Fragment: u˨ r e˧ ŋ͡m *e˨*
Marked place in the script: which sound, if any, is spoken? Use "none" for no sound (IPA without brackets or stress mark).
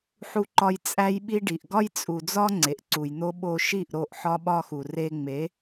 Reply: e˨˦